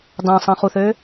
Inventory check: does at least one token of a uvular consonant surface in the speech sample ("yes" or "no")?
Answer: yes